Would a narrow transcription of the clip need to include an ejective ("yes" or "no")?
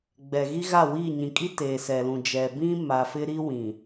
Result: yes